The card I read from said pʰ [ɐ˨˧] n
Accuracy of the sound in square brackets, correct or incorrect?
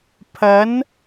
correct